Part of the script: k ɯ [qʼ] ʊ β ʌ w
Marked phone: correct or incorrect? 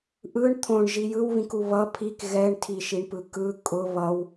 incorrect